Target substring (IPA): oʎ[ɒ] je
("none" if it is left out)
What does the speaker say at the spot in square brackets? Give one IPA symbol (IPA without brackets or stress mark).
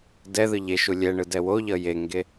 ʌ